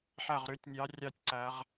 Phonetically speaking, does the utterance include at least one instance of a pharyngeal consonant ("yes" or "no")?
yes